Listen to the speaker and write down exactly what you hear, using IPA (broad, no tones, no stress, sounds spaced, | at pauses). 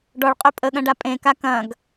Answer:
ɖ ɔ ɭ qʼ ø pʼ ə ɠ ɐ̃ ɖ a pʼ ẽ k a k ɐ̃ ɡ